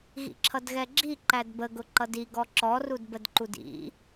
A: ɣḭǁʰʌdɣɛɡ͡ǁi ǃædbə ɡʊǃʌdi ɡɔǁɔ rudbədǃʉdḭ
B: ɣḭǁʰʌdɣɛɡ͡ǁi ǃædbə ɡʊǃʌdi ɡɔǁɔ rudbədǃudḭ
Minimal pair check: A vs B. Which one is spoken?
B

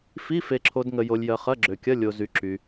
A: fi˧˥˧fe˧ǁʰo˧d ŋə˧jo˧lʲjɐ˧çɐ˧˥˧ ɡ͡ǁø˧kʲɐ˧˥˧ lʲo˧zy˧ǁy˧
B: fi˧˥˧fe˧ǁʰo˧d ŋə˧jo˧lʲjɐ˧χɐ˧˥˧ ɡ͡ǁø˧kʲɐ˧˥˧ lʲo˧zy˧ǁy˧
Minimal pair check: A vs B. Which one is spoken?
B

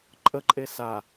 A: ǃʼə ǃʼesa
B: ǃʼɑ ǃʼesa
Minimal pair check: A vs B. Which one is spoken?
A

